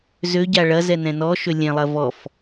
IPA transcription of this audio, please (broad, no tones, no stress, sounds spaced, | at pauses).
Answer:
z ø ɟ a ɭ ɐ z ɛ n ɛ̃ n ɔ ʃ ø lʲ ɛ̃ lˠ ɐ v ɔ f